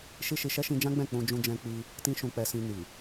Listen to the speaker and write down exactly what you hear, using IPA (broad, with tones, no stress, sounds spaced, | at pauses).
ʃ i˦ ʃ i˧ ʃ ɛ˦ ʃ ĩ˧ d͡ʒ ã˦ ɡ͡b ɛ̃˦˨ k͡p ũ˧ d͡ʒ ũ˧ d͡ʒ ɛ̃˧ k͡p i˧ | t ĩ˦ ʃ ũ˧ k͡p ɛ˧ s ĩ˧ n i˨